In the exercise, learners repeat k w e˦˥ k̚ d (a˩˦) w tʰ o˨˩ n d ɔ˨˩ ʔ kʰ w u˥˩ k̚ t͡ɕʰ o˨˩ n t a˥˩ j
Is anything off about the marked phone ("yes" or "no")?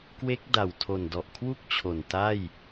yes